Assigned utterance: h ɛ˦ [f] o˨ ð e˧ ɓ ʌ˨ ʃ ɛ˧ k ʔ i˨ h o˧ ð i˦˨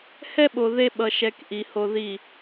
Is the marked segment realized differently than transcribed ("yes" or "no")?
yes